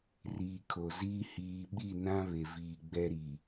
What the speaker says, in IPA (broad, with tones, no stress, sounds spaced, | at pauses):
r iː˨ kʰ o˨ z iː˦ h iː˨ ɓ i˦˨ n ã˦ β e˨ v iː˨ ɡ͡b ɛ˦ ɾ i˨